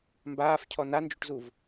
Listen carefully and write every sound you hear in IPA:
mbaːfcʰɔ nand͡ʒuʈzuv

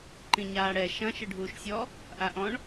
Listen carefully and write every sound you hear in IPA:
ǃĩɲaːɽɛ ʃɐ̃ ʃɘɖʱuːʃsʲɔ | ʔaʔɔ̃ɳ

